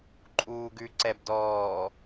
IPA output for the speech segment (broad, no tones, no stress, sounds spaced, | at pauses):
ǃʼ uː ɡ ʉ ǀ ɛ b d ɔː